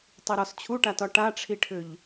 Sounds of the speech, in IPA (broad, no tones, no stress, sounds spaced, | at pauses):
tˤ i ɾ ɒ s t͡ɕʰ u ʈ a t ɒ ʈ a ʈ͡ʂʰ i ʈʰ ʏ ʎ